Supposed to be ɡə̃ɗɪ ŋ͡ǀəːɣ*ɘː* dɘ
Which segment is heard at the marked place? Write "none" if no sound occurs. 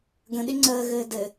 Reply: ɘː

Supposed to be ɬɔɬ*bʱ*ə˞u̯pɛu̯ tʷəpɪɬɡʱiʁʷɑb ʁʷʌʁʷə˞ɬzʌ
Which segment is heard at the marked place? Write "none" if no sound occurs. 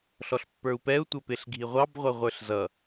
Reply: pː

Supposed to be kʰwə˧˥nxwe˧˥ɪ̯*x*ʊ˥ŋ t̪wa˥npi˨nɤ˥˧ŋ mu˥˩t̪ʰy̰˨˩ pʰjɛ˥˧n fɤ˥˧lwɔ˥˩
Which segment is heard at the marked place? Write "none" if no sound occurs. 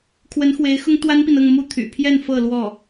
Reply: x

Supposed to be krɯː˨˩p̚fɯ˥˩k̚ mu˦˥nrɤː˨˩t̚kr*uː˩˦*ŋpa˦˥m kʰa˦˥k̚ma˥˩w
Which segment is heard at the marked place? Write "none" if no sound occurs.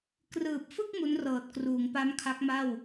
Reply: uː˩˦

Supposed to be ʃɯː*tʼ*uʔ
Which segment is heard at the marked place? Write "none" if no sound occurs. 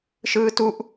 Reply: t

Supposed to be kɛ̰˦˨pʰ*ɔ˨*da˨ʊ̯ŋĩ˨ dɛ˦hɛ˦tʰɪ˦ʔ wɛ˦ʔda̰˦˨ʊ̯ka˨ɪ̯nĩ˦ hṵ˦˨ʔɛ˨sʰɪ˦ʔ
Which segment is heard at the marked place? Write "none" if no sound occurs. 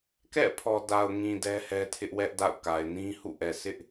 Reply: ɔ˨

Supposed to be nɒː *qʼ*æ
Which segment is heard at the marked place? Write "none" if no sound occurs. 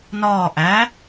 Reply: ʔ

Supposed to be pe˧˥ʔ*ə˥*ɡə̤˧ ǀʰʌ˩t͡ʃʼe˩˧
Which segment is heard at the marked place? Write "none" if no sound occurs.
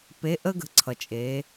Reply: ə˥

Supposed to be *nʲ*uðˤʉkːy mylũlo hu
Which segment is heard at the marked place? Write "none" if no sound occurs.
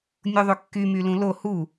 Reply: nʲ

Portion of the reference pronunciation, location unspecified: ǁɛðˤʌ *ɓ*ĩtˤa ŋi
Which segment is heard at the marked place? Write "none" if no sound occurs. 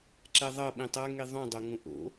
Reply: ɓ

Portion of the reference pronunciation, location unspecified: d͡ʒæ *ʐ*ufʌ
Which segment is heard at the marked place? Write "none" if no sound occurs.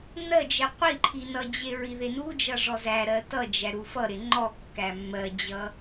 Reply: ɾ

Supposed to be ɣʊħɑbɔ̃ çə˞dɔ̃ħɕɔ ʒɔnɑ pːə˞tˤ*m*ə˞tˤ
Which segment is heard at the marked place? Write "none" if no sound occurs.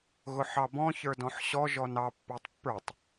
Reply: pː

